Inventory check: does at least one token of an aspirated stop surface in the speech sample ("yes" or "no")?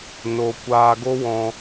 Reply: no